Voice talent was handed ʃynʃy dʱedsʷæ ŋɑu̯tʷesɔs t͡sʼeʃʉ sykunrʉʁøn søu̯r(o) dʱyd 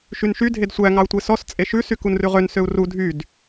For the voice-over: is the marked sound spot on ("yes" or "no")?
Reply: no